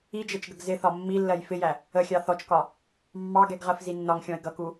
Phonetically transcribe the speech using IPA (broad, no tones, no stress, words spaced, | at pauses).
id͡ʒɛt͡ʃɡəɡ zɪθɒ mːilːɜj fɪjæ | əxʲɑ θɔt͡ʃkɒ | mːɑɡɛɡʁɜfzi nːɒŋxʲɔ̃ɪ̯ ɡʌku